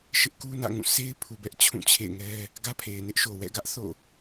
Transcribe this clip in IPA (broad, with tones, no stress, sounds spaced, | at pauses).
ʃ ɪ˦ ʔ k u˦ n ä̰˦˨ ŋ ũ˦˨ sʰ e˦ ɪ̯ pʰ u˨ b ɛ˦ ʔ t͡ɕʰ ũ˦˨ t͡ɕʰ ḛ˦˨ ɪ̯ ŋ ɛ˦ | ɡ ä˦ pʰ e˨ ɪ̯ n ɪ˦ ʔ ʃ o˨ w ɛ̰˦˨ ɡ ä˦ ʔ θ o̰˦˨